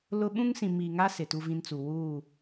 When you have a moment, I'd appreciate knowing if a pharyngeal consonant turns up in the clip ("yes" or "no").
no